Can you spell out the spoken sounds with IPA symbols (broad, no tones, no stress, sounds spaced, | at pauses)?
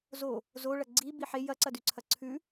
z o | z o ɭ ɐ ɡ͡ǀ i b i ħ e j ɐ ǀ ɐ d ʉ ǀʰ ɐ ǀʰ ʉ